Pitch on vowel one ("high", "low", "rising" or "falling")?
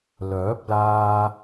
rising